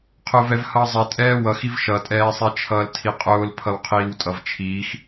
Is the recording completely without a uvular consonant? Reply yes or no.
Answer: no